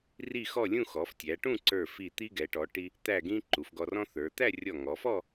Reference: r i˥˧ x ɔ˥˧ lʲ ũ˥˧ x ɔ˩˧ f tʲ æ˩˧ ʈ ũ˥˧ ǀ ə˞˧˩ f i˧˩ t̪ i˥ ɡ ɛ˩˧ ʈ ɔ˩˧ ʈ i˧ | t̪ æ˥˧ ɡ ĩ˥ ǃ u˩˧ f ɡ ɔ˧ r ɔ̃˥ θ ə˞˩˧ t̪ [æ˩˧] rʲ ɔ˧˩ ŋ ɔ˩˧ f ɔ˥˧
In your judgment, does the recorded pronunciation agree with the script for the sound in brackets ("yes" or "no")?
no